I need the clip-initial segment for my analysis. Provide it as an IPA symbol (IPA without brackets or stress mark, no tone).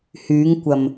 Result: h